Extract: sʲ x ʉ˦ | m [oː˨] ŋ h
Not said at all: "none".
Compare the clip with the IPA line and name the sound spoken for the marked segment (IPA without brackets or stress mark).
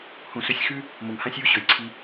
o˨